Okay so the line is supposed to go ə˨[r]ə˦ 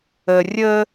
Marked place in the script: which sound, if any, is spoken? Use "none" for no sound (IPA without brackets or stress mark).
rʲ